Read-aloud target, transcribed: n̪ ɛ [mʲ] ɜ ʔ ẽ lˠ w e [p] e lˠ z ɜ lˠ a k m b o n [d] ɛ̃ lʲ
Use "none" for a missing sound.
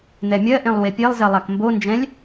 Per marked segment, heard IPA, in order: mʲ, pʲ, d͡ʒ

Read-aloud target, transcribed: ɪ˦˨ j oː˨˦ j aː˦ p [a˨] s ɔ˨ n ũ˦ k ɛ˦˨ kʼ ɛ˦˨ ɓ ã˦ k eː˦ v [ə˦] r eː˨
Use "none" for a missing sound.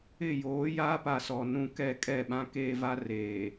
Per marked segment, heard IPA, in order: a˨, a˦

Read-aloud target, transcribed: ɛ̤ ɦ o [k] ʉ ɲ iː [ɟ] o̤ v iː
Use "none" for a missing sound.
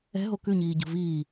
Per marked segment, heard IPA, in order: k, ɟ

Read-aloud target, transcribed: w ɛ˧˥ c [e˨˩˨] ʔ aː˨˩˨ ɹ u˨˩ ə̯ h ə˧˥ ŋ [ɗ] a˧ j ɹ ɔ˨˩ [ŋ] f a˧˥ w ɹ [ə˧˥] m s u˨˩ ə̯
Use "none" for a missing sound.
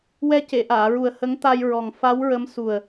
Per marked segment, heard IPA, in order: e˨˩˨, t̪, ŋ, ə˧˥

